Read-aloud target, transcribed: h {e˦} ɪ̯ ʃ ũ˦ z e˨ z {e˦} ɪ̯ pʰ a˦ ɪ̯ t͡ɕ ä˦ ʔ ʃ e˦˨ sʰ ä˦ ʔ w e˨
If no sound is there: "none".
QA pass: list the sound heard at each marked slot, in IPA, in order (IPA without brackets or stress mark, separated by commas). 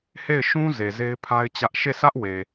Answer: e˦˨, e˦